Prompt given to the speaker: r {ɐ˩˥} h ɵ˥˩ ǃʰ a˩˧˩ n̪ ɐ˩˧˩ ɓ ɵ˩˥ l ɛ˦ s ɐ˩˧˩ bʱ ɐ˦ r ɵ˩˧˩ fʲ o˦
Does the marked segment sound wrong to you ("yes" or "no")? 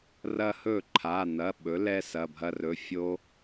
yes